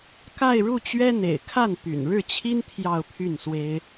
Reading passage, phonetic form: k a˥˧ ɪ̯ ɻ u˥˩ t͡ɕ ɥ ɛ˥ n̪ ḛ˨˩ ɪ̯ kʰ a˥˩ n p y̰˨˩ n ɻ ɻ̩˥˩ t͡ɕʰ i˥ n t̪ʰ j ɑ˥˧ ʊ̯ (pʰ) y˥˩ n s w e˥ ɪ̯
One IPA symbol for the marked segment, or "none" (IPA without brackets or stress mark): pʰ